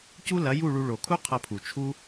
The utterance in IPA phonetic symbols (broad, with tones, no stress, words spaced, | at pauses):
cu˦lɐ˨˦ju˦˨ɭu˧ ɭo˨kʰu˦qʰɐ˧pʰu˨ t͡ʃʰu˦